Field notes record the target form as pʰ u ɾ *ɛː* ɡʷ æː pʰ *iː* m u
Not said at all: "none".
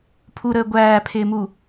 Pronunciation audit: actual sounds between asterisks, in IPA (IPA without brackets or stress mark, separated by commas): əː, ɪː